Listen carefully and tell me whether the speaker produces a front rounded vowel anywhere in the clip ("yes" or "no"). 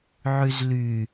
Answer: yes